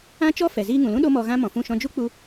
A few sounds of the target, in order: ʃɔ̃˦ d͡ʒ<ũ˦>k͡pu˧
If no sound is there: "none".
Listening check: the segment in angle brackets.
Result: u˦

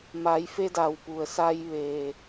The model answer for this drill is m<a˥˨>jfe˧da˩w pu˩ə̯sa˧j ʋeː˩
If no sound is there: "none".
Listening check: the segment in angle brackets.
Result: a˩˧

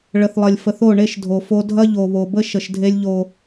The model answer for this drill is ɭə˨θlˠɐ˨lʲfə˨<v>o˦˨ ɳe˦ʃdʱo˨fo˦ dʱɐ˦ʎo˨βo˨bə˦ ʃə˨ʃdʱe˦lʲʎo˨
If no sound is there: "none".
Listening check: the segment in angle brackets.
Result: θ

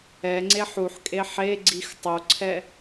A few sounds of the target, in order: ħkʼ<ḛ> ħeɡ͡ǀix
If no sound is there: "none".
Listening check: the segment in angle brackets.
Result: e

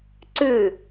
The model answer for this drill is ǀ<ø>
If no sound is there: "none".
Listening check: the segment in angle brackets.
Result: ʉ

